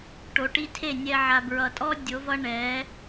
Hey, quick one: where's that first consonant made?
retroflex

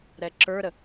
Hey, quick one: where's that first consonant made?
tongue tip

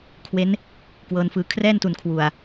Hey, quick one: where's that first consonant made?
velum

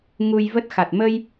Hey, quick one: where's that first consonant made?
velum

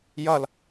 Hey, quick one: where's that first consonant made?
palate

